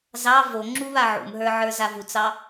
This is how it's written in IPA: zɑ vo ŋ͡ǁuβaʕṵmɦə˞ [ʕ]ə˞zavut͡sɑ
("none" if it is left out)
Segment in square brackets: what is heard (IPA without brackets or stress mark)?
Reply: ʕ